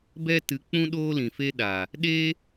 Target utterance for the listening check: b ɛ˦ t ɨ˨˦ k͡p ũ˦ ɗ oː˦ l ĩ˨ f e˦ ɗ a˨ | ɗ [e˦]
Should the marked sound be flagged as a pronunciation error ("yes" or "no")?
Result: no